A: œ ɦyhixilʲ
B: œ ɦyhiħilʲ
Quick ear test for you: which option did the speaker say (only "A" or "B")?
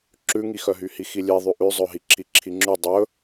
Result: A